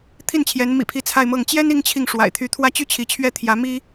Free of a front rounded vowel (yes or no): no